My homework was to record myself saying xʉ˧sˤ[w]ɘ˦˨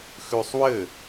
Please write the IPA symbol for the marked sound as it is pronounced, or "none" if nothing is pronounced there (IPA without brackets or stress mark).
w